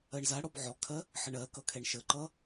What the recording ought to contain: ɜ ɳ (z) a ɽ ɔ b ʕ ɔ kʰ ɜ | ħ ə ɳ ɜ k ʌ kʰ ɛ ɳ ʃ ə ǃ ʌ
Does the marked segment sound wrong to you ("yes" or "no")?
no